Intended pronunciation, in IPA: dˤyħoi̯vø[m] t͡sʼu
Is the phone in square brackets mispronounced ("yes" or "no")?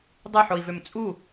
no